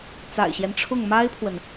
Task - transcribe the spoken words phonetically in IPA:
t͡s a̰˨˩ ɪ̯ ɕ j ɛ˦ n ʈ͡ʂʰ ʊ˥˩ ŋ m a˥ ɪ̯ pʰ w ə˨ n

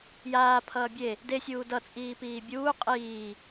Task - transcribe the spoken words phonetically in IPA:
j aː pʰ ʌː bʲ e | d e sʲ uː d ʌ t͡sʼ iː p iː bʲ uː qʼ iː

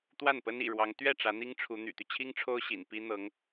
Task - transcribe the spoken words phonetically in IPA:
t̪ w a˥˩ n p ə˥ n ḭ˨˩ ɻ w ɑ˧˥ ŋ t̪ ɥ ɛ˥˩ ʈ͡ʂ ä˧˥ n̪ i˥ ŋ ʈ͡ʂʰ u˧˥ n̪ y̰˨˩ t̪ y˦ t͡ɕʰ i˥ ŋ ʈ͡ʂʰ o˥ ʊ̯ ɕ ḭ˨˩ n p i˥ n̪ ɤ˧˥ ŋ

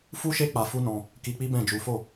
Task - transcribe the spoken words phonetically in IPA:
f u˦ ʃ e˦ k͡p a˧ f u˦ n ɔ̃˧ | k i˧ k͡p i˦ b ɛ̃˦˨ d͡ʒ u˨˦ f o˦˨

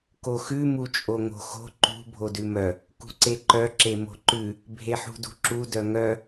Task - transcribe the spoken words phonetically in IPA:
k o x ʉ m u t͡ʃʼ o ŋ o̤ x o̤ ǃ ṳ bʱ o d ʉ m œ | k ṳ ǀ e ǃ œ ǁ e m o̤ ǃ ʉ | bʱ e ħ ṳ d ṳ ǁ u d œ ŋ œ

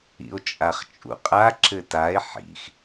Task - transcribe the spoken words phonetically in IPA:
ḭ o̯ t͡ʃʼ a χ t͡ʃʼ ṵ qʼ a ǁ ɘ t a e̯ ħ ḭ x

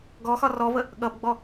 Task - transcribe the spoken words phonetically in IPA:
ɡ ɔ x ɒ r ɔ v ə | ɠ ʌ b ɡ͡b ɔ

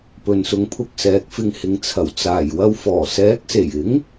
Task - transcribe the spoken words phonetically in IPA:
p ɵ˨ n s ʊ˧ ŋ pʰ ʊ˧ k̚ s ɛː˨˥ k̚ f ɪ˧ ŋ h ɪ˨˧ ŋ t͡sʰ ɐ˨˩ w t͡s aː˨˩ j w ɐ˧ w f ɔː˨˩ s ɛː˨˥ k̚ s e˨˩ j ɪ˨˥ ŋ

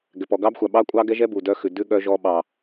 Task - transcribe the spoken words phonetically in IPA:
ɡ ɛ˨ p ɔ˨ ɡ ɑ˦ b xʷ a˨ ɓ ɑ˦ kʷʼ ɑ˦ ɡ ɛ˦ ʒ ɛ˦ b u˨ d œ˦ x ʉ˨ d ʉ˦ ɠ œ˦ ʒ ɔ˦ ɓ ɑ˦

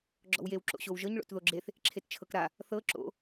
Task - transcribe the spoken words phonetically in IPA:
ɡ͡ǁ ɔ̰ w j e w ǁ o̰ ɕ o w ʒ ɤ ɲ ɭ o̰ t ð o ɡ͡ǁ e θ | ǁʰ e t t͡ʃʰ ɤ k ɾ a | θ ɤ ǁ o̰

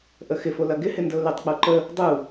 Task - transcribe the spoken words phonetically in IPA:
ʔ ə x ɪ f o l ɐ ɡ ɪ h ɪ n d ə ʊ̯ l ʏ tˤ k͡p o ǃ ə | dˤ u

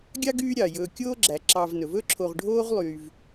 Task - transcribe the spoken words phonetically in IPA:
ɡʲ ɑ˥ ɡ yː˦ ɾʲ ɑ˩ j ɵː˨ kʲ oː˦ ɡ͡ǁ æ˩ ǁ ɑ˨ v n ɵ˩ v ɵ˦ ǁʰ o˨ ʁ ɖʱ oː˦ ʁ lˠ yː˨ v

